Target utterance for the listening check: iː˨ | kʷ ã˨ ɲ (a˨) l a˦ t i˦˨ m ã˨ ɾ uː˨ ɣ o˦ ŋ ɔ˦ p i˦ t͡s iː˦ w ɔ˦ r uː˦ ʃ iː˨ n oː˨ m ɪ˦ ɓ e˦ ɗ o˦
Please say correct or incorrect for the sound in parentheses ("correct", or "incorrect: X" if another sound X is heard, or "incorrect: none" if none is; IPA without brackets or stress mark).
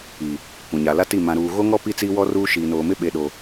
correct